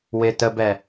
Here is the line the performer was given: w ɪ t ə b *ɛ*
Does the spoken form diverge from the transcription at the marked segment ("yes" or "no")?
no